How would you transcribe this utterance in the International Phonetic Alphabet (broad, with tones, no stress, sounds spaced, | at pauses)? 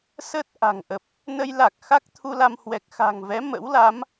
s ə˦˥ t̚ ʔ a̤˨˩ ŋ ʔ ə˨˩ p̚ | n ə˧ j l a˨˩ k̚ x a˦˥ k̚ t̪ʰ u˧ l a˧ m h w ɛ˨˩ k̚ x a̤˨˩ ŋ v ɛ˨˦ m ə̰˧˥ w l a˨˦ m